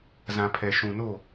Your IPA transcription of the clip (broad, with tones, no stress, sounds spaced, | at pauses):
z ã˨ pʰ ɛ˨ ʃ ũ˨ n o˦˨